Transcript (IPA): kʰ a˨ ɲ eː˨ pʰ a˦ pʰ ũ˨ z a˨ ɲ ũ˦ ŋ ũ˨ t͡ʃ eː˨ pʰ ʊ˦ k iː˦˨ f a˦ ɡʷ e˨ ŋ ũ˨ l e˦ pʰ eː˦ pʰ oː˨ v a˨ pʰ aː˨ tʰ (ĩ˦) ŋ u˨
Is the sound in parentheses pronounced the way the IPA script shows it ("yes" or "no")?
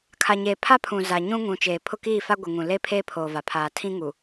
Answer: yes